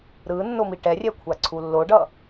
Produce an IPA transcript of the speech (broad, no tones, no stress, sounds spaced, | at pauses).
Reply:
ɾ ɯ nː o m i ʈ ɛ rʲ ɛ kʷʰ a ǀʰ u lː o ɖ ʌ